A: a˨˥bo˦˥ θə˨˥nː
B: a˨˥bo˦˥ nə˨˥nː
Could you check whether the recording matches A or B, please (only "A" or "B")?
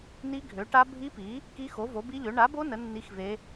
B